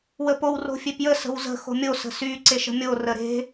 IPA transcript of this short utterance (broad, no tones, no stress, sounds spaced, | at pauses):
w ə p o w r o̤ fʲ e p j ə s ə̤ w z ə̤ x o̤ mʲ o s ə̤ s y ǀ e ʃ ə̤ mʲ o r ə ɾ e̤